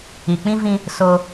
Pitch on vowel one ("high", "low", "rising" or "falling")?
low